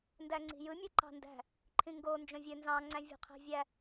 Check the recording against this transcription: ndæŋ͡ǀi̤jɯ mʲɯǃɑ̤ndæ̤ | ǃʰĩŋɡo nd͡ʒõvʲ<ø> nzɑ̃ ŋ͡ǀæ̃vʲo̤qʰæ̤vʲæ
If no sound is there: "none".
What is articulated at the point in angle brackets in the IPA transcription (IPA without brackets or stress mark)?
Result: ø